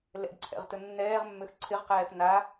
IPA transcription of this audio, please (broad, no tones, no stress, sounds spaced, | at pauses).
l ɛ̰ ɖ ǀʰ ɛ̰ ʁ t ɵ nː ɛː ʁ mː ø x ǀʰ ɪ ʁ q ɛː x n a